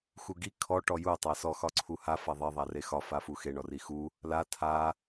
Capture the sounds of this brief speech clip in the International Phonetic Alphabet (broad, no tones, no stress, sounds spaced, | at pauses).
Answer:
x u ɡ i kʰ ɔ ʈ ɔ j u tˤ a s ɔ x ɒ ǀʰ u h a f a ðˤ e ðˤ a r e x ɒ f a f u x e ɳ ɔ r i x u | l a tʰ a